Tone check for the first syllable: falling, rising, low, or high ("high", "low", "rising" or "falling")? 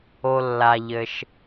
low